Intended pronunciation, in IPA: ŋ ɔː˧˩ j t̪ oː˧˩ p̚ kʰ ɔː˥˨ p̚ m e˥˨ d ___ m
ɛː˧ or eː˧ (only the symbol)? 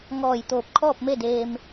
eː˧